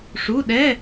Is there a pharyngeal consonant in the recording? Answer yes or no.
no